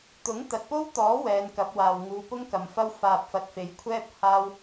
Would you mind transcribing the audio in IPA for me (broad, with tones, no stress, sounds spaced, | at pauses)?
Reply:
t̪ ʊ˨˥ ŋ t̪ ɐ˨ t̚ p o˥ w t̪ ɔː˨˥ w ɛː˨˧ n k ɐ˨˥ p̚ w aː˨ w ŋ uː˨˧ p ʊ˥ ŋ k ɐ˨ m f ɐ˥ w f aː˧ p̚ f ɐ˧ t̚ f e˨˥ j kʷʰ ɛː˥ p̚ h aː˥ w